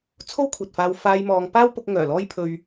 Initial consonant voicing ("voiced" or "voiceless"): voiceless